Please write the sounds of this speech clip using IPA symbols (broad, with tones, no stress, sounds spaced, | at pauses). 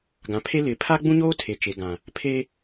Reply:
ɡ ã˨ pʰ e˦ l ɪ˨˦ pʰ a˦ ɡ͡b ũ˦ ɲ oː˦ tʰ e˨ t͡ʃ e˨ ɡ ã˨ | pʰ e˦